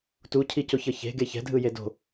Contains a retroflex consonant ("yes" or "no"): no